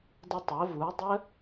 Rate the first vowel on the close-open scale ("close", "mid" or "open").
mid